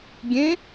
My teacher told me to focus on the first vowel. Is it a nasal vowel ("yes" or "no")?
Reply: yes